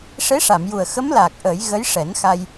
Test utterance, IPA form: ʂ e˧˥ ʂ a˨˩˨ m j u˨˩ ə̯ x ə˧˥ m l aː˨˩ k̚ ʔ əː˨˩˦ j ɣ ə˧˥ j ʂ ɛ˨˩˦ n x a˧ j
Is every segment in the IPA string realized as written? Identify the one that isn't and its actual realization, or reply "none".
none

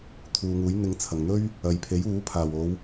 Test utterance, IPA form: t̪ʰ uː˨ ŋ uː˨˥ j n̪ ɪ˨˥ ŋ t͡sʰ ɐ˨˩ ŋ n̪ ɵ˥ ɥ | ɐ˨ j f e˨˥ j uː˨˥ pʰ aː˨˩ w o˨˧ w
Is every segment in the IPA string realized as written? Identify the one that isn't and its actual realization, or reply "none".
f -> pʰ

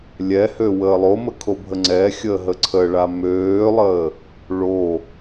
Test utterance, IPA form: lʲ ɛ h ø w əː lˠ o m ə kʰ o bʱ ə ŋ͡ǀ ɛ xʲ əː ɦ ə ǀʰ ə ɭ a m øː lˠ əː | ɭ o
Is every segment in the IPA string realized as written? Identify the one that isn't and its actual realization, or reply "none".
none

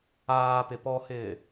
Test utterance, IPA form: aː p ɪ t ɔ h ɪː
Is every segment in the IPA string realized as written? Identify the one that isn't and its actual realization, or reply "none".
t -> p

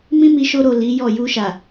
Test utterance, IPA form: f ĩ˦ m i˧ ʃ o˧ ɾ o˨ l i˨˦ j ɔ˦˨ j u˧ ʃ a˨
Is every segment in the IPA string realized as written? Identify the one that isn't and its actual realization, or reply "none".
f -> m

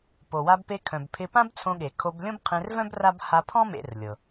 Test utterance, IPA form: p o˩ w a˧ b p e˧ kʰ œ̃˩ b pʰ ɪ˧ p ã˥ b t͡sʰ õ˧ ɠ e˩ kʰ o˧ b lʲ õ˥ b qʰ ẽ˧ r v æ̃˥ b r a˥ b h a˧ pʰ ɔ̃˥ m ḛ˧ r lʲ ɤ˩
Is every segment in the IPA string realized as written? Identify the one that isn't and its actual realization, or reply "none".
æ̃˥ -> œ̃˥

